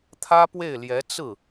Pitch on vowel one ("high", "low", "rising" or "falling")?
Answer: high